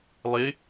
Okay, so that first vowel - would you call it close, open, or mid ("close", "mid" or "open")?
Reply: close